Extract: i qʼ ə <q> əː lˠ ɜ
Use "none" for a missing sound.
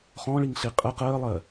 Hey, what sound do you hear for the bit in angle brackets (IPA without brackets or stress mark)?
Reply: q